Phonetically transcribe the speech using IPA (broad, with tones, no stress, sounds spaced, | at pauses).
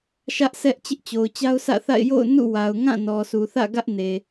ʃ ä˦ ʔ sʰ ɛ˦ ʔ t͡ɕ ɪ˦ ʔ t͡ɕ o˨ ʊ̯ t͡ɕ a˦ ʊ̯ sʰ ä̰˦˨ θ a̰˦˨ ɪ̯ j o̰˦˨ ʊ̯ n ṵ˦˨ w a˨ ʊ̯ ŋ ã˦˨ n ɔ˨ sʰ u˨ θ ä̰˦˨ ɡ ä˦ ʔ n e˨